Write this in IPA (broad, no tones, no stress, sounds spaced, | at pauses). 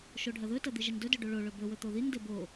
ʃ o ɖʱ ɐ ð ɵ t ɐ d̪ i ʒ i n d ɵ d ɵ ɖ o ɭ o ɭ ɵ b ɵ w ɵ t̪ o ð i n d e b o